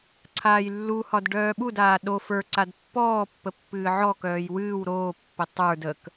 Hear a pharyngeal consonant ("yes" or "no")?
yes